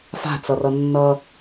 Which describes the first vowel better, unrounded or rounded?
unrounded